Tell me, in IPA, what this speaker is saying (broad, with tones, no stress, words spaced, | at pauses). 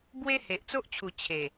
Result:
bwe˦he˨ʔt͡so˦ʔt͡ɕʰu˨˩ t͡ɕʰe˨˩